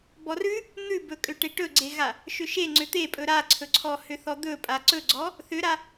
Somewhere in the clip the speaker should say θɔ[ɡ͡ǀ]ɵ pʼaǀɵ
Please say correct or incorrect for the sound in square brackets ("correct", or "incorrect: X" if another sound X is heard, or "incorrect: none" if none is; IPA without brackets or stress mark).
incorrect: d̪